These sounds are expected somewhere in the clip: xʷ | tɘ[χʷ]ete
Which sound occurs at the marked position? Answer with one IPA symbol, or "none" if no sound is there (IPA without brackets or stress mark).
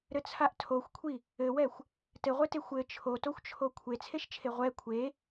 ʁʷ